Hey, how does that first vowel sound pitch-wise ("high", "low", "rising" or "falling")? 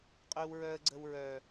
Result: high